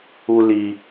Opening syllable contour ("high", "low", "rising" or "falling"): high